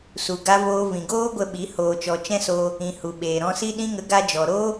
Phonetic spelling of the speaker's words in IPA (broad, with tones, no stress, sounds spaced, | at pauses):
s u˨ ɡ a˧ v oː˧ v ĩ˨ ɡ oː˦ ɡʷ ə˧ ɓ i˨˦ h oː˨ t͡ʃ ɔ˨ t͡ʃ ɛ̃˦ s oː˧ | ĩ˨ h u˨ ɓ eː˨ ɾ ɔ̃˧ s i˦ ɗ ĩ˧ ŋ ə˨˦ ɡ a˧ d͡ʒ ɔ˨ ɾ oː˦